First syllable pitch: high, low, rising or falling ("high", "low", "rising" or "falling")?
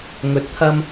rising